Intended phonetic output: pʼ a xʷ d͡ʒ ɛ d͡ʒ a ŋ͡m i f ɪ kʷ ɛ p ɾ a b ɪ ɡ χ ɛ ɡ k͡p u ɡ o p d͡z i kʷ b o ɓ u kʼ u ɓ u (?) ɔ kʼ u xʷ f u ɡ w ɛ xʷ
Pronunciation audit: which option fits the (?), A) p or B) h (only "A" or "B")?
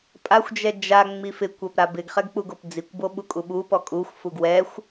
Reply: A